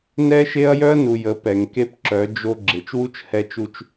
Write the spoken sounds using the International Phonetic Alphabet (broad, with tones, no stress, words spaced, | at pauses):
nɛ˦ʃe˦ɐ̯ jœ˦ɐ̯nu˨ jə˨˦pɛ˨ŋ ke˦pǁœ˨˦ d͡ʒo˦ ɡ͡ǁe˨t͡ʃwu˦t͡ʃ hɛ˦t͡ʃu˦t͡ʃ